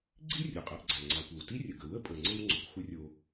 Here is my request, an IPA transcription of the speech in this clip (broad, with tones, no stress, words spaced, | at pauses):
ɡ͡ǀi˥ rʲo˩qʼa˧ʔɡ͡ǀa˩ ŋ͡ǀa˩kʷə˩w ti˥rʲə˩ɡə˩ wə˥pʼə˩ŋ͡ǀɘ˧w ŋ͡ǀo˩kʷxʷɘ˥rʲo˧